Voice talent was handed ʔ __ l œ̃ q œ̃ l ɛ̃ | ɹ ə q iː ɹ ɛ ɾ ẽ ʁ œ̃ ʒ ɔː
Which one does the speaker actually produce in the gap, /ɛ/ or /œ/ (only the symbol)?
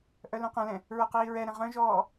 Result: œ